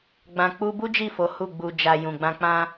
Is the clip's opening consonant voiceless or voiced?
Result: voiced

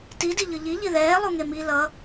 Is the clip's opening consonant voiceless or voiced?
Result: voiceless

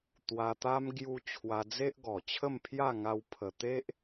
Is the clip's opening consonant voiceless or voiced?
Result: voiceless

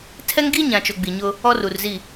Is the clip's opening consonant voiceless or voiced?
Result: voiceless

